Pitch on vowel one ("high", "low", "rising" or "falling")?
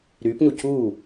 rising